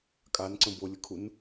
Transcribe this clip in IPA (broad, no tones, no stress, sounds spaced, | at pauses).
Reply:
kʼ a n ǀ ə̃ b o lʲ ə kʰ u n